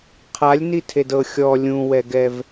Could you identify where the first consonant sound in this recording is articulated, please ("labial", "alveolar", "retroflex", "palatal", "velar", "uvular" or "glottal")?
uvular